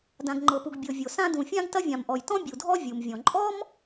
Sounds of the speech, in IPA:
dã˩ɡŋ͡ǃɤ˩pu˩ɡ bʲɤ˩ vʲo˩sã˥ dũ˩fʲã˥ɡ tɐ˥vʲã˩mʔɔ˩j tɔ̃˥ bʲu˩dʱɔ˥ vʲu˩mvʲɔ̃˩ ǃʼɔ˥m

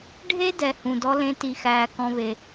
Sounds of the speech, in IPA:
ɖʱe˦dɛ˨ hũ˨dɔ˦ lẽ˦ti˧xæː˧ kɔ̃˧βe˨

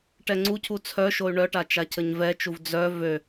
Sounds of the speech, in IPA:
ʈɛŋ͡ǀucʰu t͡sʰœʃoy̯ ɳœʈa t͡ʃacʰəɲvɛt͡ʃuv d͡zœ vø

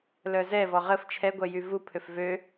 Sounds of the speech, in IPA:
lœzɛvɔ ʁəf t͡ʃʰɛɡʷœ jyvupʰøf vø

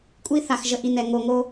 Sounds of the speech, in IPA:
kʷʼi˨ θa˩xʒə˩ʔi˩nɛ˩ ŋo˩ŋo˨

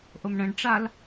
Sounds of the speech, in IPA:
ʔomɳə̃ɖʈ͡ʂal

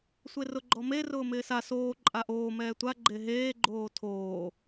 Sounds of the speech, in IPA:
sʷerʊɡ͡ǃɔme rʊːmɪːsa soː ǃʼaʔoː mɛːtʷa ɡ͡ǃeɦeː ɡ͡ǃoːtʰoː

